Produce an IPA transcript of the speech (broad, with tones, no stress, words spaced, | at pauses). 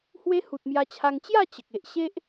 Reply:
hwe˦hu˨t̚mja˧t͡ɕʰa˧ŋ t͡ɕja˥˧ t͡ɕə˨k̚e˨ʔ ɕe˦ʔ